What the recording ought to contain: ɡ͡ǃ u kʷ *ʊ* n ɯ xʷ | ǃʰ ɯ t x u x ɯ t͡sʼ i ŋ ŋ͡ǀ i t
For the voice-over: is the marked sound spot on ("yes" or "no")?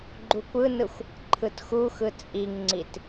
no